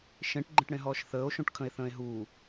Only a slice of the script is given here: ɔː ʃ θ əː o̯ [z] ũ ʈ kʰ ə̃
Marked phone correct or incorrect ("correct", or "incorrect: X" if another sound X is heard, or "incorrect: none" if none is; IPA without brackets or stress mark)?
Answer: incorrect: ʃ